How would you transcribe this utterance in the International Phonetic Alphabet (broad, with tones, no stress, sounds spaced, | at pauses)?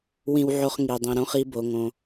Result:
w ĩ˧ w ʕ o˧ χ ŋ i˩ dˤ ĩ˩ ɾ õ˧ χ i˧ b o˩ ŋ õ˩